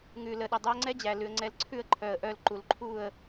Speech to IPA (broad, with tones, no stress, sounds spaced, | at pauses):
ŋ ʉ˨ l ə˨ ɗ ɘ˨ dˤ ʉ˧ ə̯ ŋ͡ǀ ɛ˦ d͡ʑ æ˨ l ʉ˨ ə̯ ŋ͡ǀ ɛ˧ l ǀʰ ʉ˦˨ ə̯ ǃʰ œ˨ ə̯ ʔ œ˧ l ǃ u˨ l ǃʰ u˦˨ ə̯